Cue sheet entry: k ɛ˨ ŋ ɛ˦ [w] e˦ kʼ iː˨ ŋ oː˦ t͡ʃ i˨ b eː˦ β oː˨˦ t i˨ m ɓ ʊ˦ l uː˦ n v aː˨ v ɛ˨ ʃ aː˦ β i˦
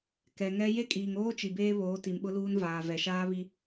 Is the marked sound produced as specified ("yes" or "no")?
no